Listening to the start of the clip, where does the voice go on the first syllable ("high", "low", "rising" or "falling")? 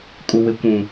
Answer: low